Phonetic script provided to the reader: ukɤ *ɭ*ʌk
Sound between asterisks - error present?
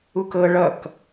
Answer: no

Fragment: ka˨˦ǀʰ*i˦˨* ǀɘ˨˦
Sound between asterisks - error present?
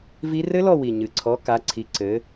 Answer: yes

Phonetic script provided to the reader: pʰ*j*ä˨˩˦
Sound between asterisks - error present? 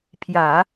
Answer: no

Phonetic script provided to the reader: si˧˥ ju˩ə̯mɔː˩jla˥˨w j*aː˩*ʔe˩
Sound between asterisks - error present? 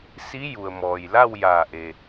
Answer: yes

